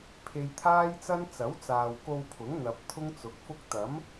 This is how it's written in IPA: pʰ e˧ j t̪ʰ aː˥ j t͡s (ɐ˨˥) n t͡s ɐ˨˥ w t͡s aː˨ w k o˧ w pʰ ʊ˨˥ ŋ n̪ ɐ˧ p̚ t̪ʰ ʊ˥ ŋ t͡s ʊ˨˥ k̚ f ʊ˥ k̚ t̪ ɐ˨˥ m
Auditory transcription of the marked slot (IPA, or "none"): ɐ˥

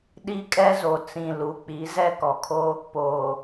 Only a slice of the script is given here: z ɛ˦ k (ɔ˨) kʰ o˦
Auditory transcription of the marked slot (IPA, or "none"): ɔ˨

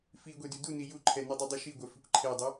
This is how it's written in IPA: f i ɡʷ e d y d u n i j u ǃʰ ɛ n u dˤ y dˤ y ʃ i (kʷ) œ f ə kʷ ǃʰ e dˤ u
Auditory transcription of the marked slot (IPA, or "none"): ɡʷ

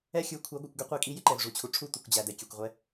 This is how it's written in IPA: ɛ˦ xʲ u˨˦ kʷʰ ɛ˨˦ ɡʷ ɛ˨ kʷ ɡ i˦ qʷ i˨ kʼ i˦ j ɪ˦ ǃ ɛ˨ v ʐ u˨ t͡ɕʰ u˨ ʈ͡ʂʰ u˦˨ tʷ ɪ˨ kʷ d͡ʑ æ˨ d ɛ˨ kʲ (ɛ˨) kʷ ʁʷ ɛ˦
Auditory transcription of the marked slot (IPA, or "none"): ɛ˨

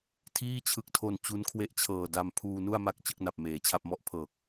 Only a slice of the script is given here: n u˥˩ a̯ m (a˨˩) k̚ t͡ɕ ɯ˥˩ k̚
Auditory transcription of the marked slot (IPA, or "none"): a˦˥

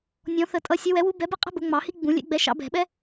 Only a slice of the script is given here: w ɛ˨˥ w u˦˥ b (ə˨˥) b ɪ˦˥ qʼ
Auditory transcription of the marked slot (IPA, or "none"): ɛ˨˥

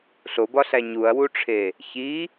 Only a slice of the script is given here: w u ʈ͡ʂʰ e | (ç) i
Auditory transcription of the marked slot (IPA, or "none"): ç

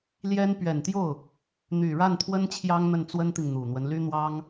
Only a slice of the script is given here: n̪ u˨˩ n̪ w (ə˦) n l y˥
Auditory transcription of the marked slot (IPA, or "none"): ə˦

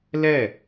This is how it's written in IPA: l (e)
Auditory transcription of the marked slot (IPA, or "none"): ɛ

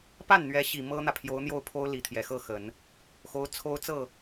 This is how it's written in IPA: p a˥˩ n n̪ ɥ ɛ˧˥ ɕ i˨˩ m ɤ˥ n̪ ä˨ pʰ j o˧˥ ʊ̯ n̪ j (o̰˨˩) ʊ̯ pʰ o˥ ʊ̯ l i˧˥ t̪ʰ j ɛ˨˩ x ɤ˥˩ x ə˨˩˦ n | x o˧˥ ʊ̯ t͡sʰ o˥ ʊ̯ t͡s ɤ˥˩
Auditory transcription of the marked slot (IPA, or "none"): o˥˩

